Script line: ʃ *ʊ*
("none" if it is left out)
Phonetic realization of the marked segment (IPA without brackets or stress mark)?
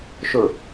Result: ʊ